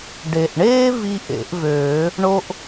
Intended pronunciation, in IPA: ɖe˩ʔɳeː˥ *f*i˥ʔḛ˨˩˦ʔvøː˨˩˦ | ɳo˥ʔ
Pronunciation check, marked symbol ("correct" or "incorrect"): incorrect